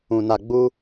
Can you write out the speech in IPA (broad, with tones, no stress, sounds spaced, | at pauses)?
ũ˧ n a˧ ɡ͡b u˦